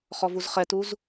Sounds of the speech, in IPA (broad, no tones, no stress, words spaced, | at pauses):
χɔvuzχɛtuz